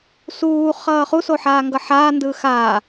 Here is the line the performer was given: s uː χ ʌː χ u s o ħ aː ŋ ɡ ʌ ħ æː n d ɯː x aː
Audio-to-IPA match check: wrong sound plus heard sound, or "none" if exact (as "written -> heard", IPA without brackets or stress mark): æː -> aː